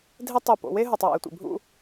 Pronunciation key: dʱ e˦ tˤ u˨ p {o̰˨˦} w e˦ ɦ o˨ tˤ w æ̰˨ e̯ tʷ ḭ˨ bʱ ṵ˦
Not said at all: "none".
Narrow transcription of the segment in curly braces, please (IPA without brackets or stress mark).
o̰˨˦